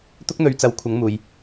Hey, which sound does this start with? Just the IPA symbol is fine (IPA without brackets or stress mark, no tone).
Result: t̪